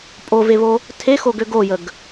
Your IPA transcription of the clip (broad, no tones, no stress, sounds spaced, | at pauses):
pʼ o v e β o | tʰ e x o ɡ ø ɡ o j ə ɡ